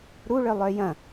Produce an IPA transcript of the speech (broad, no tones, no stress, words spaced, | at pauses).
ɾuɭœ lˠœjɐ̃